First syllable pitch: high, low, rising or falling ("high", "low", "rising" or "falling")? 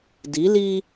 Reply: rising